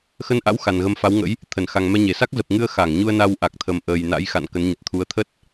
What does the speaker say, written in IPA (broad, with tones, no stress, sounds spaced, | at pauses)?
x ə˧ n ʔ a̰˧˥ w x a˨˩ n ɣ ə˧ m f a˨˦ w ŋ ə̰˧˥ j | t̪ʰ ə˧˩ n x a˨˩ ŋ m ɛ˧ ɲ e˧˩ s a˦˥ k̚ z ə˨˩ p̚ ŋ ɨ˧ ə̯ x a˧˩ ŋ ɲ u˧ ə̯ n a˧ w ʔ a˨˩ k̚ t̪ʰ ə˨˩ m ʔ əː˨˩ j n a̰˧˥ j x a̰˧˨ n k ə˨˦ n ɲ ə˨˩ t̚ t̪ʰ u˨˦ ə̯ t̪ʰ ə˦˥ t̚